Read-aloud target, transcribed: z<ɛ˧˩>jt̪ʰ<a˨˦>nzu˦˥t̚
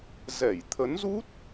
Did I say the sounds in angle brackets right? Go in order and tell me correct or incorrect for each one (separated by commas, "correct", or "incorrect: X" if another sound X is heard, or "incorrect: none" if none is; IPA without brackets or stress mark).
correct, incorrect: ə˨˦